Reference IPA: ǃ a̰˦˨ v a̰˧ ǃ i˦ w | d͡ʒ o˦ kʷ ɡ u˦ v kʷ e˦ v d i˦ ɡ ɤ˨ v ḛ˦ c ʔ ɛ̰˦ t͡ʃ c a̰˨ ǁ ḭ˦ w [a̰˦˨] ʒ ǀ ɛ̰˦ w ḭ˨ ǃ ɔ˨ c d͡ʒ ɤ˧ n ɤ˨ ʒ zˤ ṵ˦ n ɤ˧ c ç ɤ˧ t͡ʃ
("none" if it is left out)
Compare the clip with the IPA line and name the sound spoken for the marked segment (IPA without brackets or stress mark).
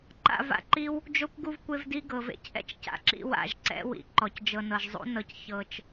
a̰˦˨